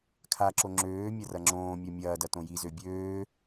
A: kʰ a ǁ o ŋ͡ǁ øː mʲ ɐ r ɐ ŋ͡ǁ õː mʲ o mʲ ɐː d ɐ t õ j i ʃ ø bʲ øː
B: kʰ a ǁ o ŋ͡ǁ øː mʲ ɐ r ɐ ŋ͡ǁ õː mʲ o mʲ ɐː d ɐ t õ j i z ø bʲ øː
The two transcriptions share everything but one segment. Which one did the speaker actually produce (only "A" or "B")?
B